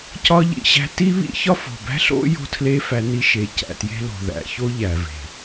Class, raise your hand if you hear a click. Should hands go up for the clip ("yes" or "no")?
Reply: no